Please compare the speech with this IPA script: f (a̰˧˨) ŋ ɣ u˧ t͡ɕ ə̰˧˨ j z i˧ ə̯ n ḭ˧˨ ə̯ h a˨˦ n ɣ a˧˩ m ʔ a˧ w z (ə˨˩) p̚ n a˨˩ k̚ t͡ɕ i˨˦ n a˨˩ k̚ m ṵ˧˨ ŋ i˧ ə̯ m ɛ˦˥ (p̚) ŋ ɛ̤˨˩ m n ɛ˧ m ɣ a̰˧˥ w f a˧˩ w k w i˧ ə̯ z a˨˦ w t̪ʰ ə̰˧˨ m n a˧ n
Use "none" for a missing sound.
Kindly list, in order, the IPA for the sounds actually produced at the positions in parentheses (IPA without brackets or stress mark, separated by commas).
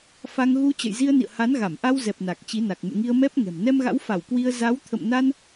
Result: a˧, ɛ˨˩, p̚